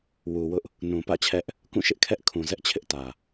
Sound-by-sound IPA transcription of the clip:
wu˨wʊ˦ʔ | nũ˨pä̰˦˨t͡ɕʰɛ˦ʔ | kũ˦˨ʃɪ˦ʔkʰɛ˦ʔ kʰũ˨zɛ˦ʔ t͡ɕʰɪ˦ʔtä˨

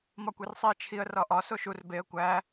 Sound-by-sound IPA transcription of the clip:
mɒkʷersˤiə̯t͡ʃʰiə̯ rɒʔɒ soʃur beə̯ kʷæ

